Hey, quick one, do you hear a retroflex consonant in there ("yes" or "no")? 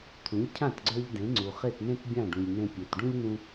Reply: yes